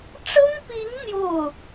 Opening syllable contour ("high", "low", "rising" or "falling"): high